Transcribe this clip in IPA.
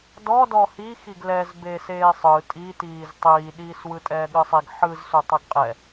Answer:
d ɔ d ɔ h i x i ɡ l ɛ z b eː s eː sˤ ɯ tʼ i t iː z tˤ iː ɗ iː s w ɯ tʼ ɛː ɠ ɯ sˤ i ɡ ħ ɯ z s u tˤ ɯ ɡ qʼ ɛ

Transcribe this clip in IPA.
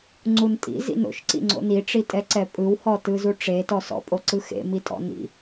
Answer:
ŋ͡ǀ u n tʼ ḭ z ḭ n o̰ ʃ ǀ ḭ ŋ͡ǀ o̰ n i ʈ͡ʂ i tʼ ɛ ǀ ɛ pʼ ɯ w h ɔ t ɯ z u ʈ͡ʂ e t ɔ s ɔ̰ pʼ o ǀ ɯ x ḛ m i tʼ ɔ̰ n ḭ

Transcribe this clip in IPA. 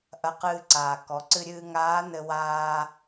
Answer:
ʔ ɐ˧ q ɨː˧ ǀ aː˩ k ɔ˩˧ ǀ ɨ˧ ɾʲ ɨː˧ ŋ aː˧˥ n ɘ˧ w aː˧

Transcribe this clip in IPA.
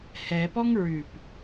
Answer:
h ɛ p ɔ ŋ ɹ ʉ p

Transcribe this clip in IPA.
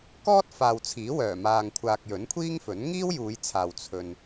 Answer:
k ɔː˥ t̚ f aː˨ w t͡sʰ iː˨˥ w œː˨˩ m aː˨ ŋ kʷʰ aː˨ k̚ j ɵ˨˥ n kʷʰ iː˥ ŋ f ɵ˨˥ n ŋ iː˥ w j uː˨˧ j t͡sʰ aː˨ w t͡sʰ ɵ˧ n

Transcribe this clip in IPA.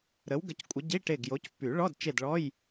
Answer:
ɾ ə˨˦ w ɡ ə˨˦ c kʷʼ ə˨˦ ɟ i˧˥˧ ʈ e˦˨ ɡ j o˨˦ c pː y˨˩˦ ɭ ɔ˧˥˧ d t͡ʃ e˦˨ d ɭ ɔ˧˥˧ j

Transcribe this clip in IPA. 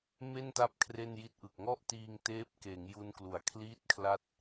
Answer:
m e˥˩ n t a˦˥ p̚ kʰ r e˥˩ n j i˥˩ t̚ ʔ ɯ˨˩ k̚ ŋ ɔ˥˩ ʔ t iː˧ ŋ t eː˦˥ p̚ k eː˩˦ ŋ j u˧ n k l u˩˦ a̯ kʰ l iː˥˩ t̚ kʰ l a˥˩ t̚

